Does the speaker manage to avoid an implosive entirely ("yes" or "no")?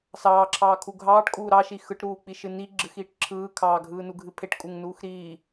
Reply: yes